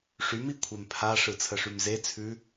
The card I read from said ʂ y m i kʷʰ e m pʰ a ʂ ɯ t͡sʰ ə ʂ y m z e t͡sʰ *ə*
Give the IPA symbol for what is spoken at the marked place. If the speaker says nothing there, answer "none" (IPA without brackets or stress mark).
ʉ